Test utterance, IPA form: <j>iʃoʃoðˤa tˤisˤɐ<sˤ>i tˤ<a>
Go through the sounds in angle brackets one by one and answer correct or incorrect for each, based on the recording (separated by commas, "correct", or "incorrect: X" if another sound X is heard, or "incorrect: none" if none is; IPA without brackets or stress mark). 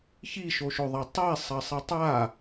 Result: incorrect: ç, correct, correct